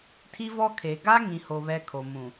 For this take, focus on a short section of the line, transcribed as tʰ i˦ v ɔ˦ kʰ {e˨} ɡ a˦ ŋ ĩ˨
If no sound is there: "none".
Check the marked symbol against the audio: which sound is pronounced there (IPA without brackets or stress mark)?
e˨